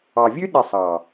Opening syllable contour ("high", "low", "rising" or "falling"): low